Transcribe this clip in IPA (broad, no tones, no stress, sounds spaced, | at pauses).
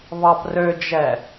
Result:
β ɑ p r ø d͡ʒ ɛ